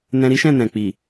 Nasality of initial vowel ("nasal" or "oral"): nasal